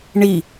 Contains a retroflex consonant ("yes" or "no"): yes